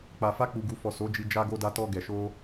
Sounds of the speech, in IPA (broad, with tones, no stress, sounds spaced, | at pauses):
k͡p a˨ f a˧ k͡p u˨ ɡ u˨ f ɔ˨ s o˨˦ d͡ʒ i˧ d͡ʒ a˧ ɡ o˧ d a˧ t ɔ˧ ɡ ɛ˨ ʃ o˧